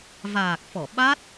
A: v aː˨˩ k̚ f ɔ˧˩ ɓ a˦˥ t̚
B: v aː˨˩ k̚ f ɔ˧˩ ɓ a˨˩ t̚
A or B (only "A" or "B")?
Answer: A